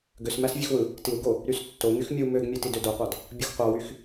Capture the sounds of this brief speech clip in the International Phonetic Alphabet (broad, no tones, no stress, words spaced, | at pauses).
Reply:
ɡøsmæs vʲøxwɯ | tiwɡo | ɾystːo ŋyxmʲu møɡmʲøtid ødoqʷɑd | bʲoxqʷɑwyx